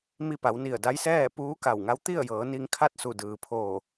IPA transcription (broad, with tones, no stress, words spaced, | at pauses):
mi˧pa˩˧w ni˧˩ə̯da˧˥jsɛː˥˨ puː˧˥ka˧˩wŋa˧˥w t̪i˥˨ə̯jɤː˩˧ni˧ŋkʰa˥˨t̚ su˧˩dɯː˩pʰoː˧˩